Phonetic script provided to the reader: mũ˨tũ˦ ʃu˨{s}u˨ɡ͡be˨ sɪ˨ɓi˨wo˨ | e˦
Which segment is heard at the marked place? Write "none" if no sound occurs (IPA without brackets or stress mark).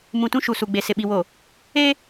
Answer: s